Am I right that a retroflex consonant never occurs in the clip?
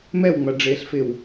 no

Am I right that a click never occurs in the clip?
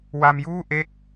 yes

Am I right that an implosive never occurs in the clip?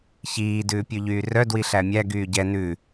yes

